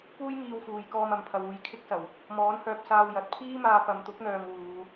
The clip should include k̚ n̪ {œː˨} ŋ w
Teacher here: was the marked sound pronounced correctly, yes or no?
yes